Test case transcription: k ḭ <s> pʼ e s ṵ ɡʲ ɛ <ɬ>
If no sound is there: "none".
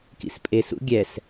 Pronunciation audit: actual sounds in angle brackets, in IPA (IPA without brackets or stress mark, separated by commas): s, s